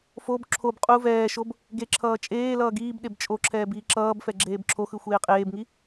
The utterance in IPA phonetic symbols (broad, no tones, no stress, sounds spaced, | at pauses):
f o b ǁʰ o b qʼ u v ɛː ʃ o b | ɡ e ǁʰ ʌː t͡ʃʼ eː l ʌː ɡ iː b ɗ e b t͡ʃʼ o ǁʰ ɛː b iː ǁ ʌː b f ɛ ɡ͡ǁ eː b ǁʰ o x ɯ xʷ eː qʼ eː b ŋ i